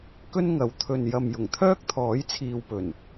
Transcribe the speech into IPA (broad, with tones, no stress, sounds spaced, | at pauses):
k ɵ˥ n ŋ ɐ˨˧ w t̪ʰ ɵ˨ n j ɐ˨ m j ʊ˨˩ ŋ t̪ʰ œː˥ k̚ t̪ʰ ɔː˨˥ j t͡sʰ iː˨ w p ɵ˨˩ n